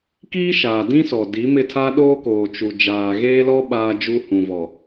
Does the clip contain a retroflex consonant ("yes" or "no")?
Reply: no